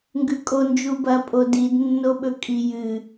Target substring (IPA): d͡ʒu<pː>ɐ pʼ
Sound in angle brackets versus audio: incorrect: b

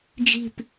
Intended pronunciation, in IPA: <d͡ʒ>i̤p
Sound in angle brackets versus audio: correct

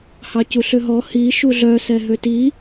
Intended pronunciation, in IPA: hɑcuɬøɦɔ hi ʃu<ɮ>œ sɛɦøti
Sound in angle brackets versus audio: correct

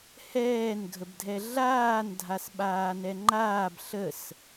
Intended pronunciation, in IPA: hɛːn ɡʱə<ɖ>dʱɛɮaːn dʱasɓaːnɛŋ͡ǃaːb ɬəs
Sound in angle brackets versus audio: incorrect: b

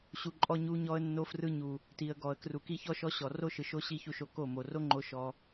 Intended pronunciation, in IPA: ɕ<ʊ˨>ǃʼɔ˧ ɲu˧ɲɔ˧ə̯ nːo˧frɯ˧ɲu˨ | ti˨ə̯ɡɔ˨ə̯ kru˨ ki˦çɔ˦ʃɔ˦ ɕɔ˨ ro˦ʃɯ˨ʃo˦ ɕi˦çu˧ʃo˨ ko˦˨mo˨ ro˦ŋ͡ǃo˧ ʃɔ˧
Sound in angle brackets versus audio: incorrect: u˨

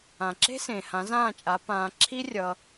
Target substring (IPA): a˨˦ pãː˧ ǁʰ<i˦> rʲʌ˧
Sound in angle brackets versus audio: correct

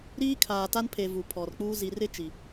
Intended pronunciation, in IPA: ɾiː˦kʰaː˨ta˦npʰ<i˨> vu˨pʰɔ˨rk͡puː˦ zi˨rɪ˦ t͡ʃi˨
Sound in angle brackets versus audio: incorrect: e˨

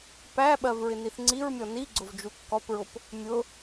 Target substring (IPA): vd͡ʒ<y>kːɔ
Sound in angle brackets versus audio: incorrect: u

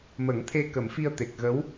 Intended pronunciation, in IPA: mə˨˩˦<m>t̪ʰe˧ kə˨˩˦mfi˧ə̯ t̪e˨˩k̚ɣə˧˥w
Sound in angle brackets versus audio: incorrect: ŋ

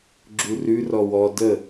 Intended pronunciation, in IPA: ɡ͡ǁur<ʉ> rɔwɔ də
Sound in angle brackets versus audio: correct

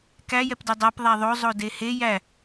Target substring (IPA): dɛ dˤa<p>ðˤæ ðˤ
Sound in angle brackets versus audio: correct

